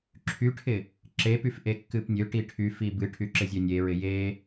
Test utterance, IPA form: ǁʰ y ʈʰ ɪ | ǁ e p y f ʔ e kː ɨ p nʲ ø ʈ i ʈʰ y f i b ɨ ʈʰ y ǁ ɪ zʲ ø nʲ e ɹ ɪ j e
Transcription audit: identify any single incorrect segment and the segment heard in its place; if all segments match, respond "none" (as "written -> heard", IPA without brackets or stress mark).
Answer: none